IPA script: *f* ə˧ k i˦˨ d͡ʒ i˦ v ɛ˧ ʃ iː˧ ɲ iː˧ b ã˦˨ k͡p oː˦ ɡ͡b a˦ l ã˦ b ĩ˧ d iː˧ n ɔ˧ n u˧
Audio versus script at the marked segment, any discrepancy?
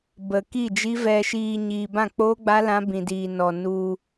yes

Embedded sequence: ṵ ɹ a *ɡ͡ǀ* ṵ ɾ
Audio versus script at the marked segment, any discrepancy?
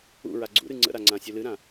no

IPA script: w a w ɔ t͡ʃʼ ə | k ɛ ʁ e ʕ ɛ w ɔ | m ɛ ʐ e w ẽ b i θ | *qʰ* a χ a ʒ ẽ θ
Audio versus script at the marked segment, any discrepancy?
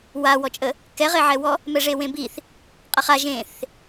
yes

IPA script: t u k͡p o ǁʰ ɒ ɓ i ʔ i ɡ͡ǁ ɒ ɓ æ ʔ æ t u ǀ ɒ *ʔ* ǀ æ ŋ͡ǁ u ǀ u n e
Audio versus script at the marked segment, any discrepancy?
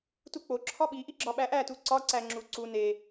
yes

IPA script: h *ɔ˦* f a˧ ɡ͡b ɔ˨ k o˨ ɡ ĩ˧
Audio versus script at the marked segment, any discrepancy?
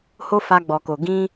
yes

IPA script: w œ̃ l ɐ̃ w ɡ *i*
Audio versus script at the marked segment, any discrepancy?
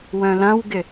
yes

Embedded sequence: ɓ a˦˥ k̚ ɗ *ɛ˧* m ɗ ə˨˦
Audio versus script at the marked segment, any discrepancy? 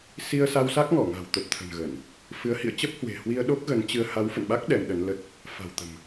no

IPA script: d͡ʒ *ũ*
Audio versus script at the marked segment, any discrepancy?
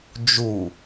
yes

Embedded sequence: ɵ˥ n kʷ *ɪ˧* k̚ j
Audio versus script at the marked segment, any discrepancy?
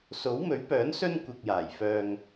yes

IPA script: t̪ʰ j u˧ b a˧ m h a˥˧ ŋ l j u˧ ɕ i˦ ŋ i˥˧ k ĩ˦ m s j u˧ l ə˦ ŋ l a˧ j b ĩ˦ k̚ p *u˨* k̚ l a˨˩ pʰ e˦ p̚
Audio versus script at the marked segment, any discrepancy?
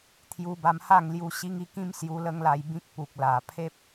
no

